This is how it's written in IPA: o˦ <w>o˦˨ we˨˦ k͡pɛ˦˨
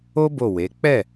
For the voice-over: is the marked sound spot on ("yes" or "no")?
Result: no